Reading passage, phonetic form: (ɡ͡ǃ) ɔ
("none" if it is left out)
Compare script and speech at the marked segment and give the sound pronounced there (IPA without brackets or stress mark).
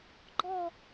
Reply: ɡ͡ǃ